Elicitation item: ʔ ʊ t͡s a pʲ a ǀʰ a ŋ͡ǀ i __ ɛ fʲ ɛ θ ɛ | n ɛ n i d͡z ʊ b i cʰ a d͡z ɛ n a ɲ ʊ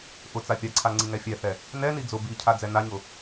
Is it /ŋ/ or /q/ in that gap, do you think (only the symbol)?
ŋ